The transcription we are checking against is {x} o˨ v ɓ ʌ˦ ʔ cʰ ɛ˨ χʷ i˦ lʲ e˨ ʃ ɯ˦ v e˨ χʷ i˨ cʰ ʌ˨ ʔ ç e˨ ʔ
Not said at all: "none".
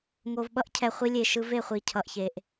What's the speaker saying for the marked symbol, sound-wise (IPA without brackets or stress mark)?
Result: ŋ